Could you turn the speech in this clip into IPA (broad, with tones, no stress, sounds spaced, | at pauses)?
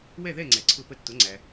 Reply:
w ɛ˥˩ ð ɛ˥˩ ŋ͡ǀ ɛ˩ ǀʰ ʊ˧ p ə˧ tː ʊ˩˥ ŋ͡ǀ æ˩